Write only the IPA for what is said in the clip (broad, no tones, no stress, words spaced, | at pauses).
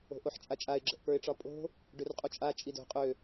o̤ʔoħt͡ʃʼat͡ʃʼaɪ̯ ɡ͡ǁə̤ʔpə˞ɪ̯ʈ͡ʂɒpʼo̤ | ɖørqʼut͡ʃʼa t͡ʃʼido̤ qʼø